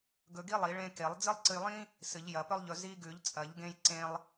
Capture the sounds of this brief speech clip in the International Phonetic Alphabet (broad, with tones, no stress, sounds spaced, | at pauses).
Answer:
ɡ ɵ˧ ɡ i˥ lˠ i˨˩˦ ɭ ẽ˧ k e˨˩˦ lˠ d͡z ɨ˥ lˠ ǀ ɨ˧ j lˠ ĩ˥ | s ɨ˨˩˦ ʎ j ɐ˨˩˦ p ɵ˥ lˠ ʎ ɵ˧ z i˧ ɡ ʉ˨˩˦ ʎ t͡sʼ ɐ˨˩˦ ʎ ɡ ẽ˧ j ǀ ẽ˥ lˠ